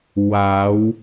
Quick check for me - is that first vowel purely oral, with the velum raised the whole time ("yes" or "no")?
yes